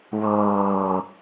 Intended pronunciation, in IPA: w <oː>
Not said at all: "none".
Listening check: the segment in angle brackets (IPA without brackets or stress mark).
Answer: oː